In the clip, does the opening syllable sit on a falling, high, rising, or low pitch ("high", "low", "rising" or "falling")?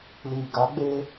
low